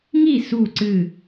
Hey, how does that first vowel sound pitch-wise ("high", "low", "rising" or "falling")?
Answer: falling